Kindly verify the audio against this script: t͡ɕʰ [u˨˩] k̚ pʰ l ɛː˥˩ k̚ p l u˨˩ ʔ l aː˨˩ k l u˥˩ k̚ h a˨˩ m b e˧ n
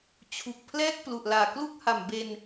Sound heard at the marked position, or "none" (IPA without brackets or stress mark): u˨˩